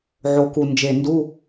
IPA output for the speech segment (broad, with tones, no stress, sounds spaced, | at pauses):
ʕ o˨˩ k u˨˩ n d͡ʒ e˨˩ n d u˧˥˧